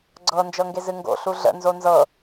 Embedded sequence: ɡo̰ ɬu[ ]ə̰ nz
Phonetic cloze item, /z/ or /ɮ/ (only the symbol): ɮ